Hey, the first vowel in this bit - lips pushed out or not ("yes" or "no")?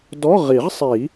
yes